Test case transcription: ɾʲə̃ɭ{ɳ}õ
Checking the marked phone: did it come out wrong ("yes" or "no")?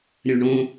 no